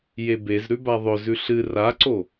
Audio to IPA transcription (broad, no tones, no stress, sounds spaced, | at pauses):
j e b e z ɾ ʉ b a ðˤ ɵ z ʉ ɬ ɨ r a ǀ o